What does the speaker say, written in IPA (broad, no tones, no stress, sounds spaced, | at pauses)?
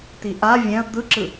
t̪ i ʔ a vʲ ɛ̃ ɐ̯ d̪ ɯ ǁ ɯ